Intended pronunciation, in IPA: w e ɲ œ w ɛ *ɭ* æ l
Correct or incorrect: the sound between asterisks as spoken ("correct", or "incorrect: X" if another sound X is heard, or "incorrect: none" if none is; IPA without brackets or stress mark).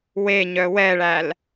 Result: correct